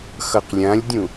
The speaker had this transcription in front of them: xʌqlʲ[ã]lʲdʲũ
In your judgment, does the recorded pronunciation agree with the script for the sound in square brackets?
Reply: yes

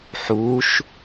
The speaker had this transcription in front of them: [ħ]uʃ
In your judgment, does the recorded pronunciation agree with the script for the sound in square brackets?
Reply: yes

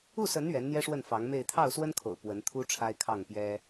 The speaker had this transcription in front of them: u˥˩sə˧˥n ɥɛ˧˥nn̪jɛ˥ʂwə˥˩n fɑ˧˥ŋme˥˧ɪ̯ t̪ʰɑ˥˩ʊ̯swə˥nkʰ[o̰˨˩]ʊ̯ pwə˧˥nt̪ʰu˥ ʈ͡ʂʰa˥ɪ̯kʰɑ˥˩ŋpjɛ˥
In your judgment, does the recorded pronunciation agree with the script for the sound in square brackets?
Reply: yes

